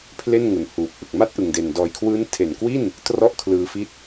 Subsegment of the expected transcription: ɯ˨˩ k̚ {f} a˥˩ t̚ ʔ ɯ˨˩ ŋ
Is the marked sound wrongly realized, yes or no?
yes